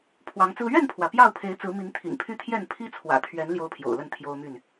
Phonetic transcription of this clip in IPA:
pʰ w ɑ˨˦ ŋ t͡s ɹ̩˦ ɥ ɛ˥˨ n pʰ w ä˩ p j ɑ˥˨ ʊ̯ pʰ e˨˦ ɪ̯ t͡s ɹ̩˨˦ m i˨˦ ŋ t̪ʰ ḭ˨˩ ŋ pʰ y˦ t̪ʰ j ɛ˥˨ n pʰ i˦ t͡sʰ w ä̰˨˩ t̪ʰ ɥ ɛ˨˦ n l j o˦ ʊ̯ pʰ j o̰˨˩ ʊ̯ l ə˥˨ n t̪ʰ j o˦ ʊ̯ m y˥˨ n

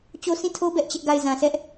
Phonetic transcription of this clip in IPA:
t͡ɕ o˦ sʰ ĩ˦˨ tʰ o˦ b ɛ˦ ʔ t͡ɕ ɪ˦ ʔ ɡ a˦˨ ɪ̯ z ã˨ sʰ ɛ˦ ʔ

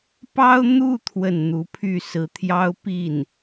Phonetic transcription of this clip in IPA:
p ɑ˥ ʊ̯ n̪ u˥˧ t̪ʰ w ə˥˩ n n̪ u˧˥ pʰ y˥˩ s ɹ̩˧˥ t̪ʰ j ɑ˥ ʊ̯ p i˥˩ n

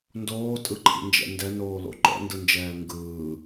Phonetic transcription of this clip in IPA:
n d oː tʼ ɯ ǃʰ ḭ n d͡ʒ ɛ̰ n d ɛ n oː l o̰ ǃ ɔ̰ n d ɯ n d͡ʒ ɛː ŋ ɡ ɯː

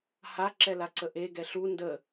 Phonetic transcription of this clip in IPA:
h a ǁ ɛ l a ǀ ə ʔ e ɡ ɛ ɬ u n d ə

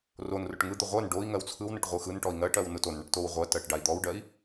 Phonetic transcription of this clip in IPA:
r o n r ʊ ʈ ŋ ɯ d̪ ʊ ʁʷ ɜ n ɖ o i̯ ŋ ɜ w t͡sʰ ɯ w n ʊ ʈ ʁʷ ɯ x ɯ n ʈ ɔ i̯ ŋ ɜ ʈ ɜ w n ʊ t o n ɳ a ʈ t o w ʁʷ ɜ t ɜ ʈ ɖ a i̯ d̪ ɔ w ɖ ɜ i̯

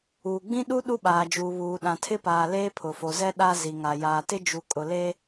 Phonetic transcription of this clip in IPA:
uː˨ ɡ͡b ĩ˦ ɗ u˦ ɗ u˦ ɓ aː˨ d͡ʒ uː˨ β uː˨ ɗ ã˨ tʰ ɪ˦ p aː˨ l eː˦ pʰ ʊ˨ f o˨ z ɛ˦ ɗ a˦ z i˨ ŋ a˨ j aː˨ t ɪ˦ d͡ʒ u˨ kʼ ʊ˨ l e˦

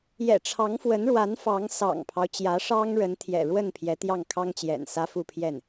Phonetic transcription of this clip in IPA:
j ɛ̰˨˩ ʈ͡ʂʰ ɑ˧˥ ŋ f w ə˧˥ n ɻ w a˧˥ n f ɑ˧˥ ŋ s ɑ̰˨˩ ŋ pʰ ɑ˦ ʊ̯ t͡ɕ j ä˧˥ ʂ ɑ˥ ŋ ɻ ə˧˥ n t̪ʰ j ɛ̰˨˩ ɻ w ə˥˩ n pʰ j ɛ˧˥ t̪ j ɑ˥˩ ŋ kʰ ɑ˥ ŋ t͡ɕ j ɛ̰˨˩ n s ä˥ f u˥˧ pʰ j ɛ˥˩ n

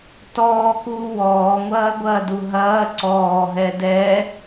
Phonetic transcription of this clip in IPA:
t ɔː k uː w ɔː ŋʷ ɐː ɡʷ ɐː d u ɦ ɐː ǀ ɔː ɦ ɛ d ɛ

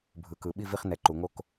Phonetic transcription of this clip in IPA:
bʱ ɯ˩˧ k ɯ˩˧ ɓ i˥˧ v i˥˧ χ n ɛ˧˩ ǃ u˩˧ ŋ o˥˧ k

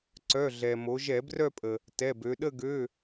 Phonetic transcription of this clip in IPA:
ǀ œ˩˧˩ ɮ ɛ˩ m o˩˧ ʒ ɛ˧˩˧ b r œ˦˨ pʼ ə˩ | t ɛ˩˧˩ b ø˩˧ ɗ ə˦˨ ɡ ø˩˧˩

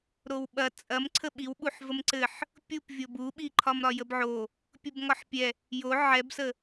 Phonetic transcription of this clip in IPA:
ɾ o w ɓ ɐ t͡sʼ ɐ m ǀʰ ə ɓ i w ɓ u ħ v ə m ǀ ɘ ħ | pʲ u p vʲ o b u ɓ i ǃʰ ɒ m ɾ ɒ j ə b ʕ o | pʲ u b ŋ ɒ ħ pʲ ɛ | j o ʕ ɛ b s ə

